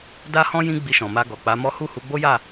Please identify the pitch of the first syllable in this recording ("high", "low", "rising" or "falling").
high